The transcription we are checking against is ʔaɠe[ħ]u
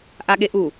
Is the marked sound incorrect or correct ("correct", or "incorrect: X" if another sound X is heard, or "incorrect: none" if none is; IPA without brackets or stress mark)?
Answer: incorrect: ʔ